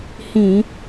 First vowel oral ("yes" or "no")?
no